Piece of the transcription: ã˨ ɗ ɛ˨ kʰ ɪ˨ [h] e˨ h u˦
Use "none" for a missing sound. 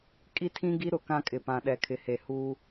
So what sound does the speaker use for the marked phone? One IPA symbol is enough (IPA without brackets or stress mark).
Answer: h